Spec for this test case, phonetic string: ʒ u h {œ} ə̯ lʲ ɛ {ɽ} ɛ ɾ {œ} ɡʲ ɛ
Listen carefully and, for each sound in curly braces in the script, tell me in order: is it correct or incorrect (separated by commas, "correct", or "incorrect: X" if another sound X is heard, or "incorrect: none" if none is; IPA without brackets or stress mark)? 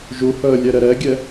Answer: correct, incorrect: ɾ, incorrect: ɛ